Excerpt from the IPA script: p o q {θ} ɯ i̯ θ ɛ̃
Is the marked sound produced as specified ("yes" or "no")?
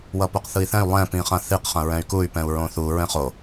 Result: yes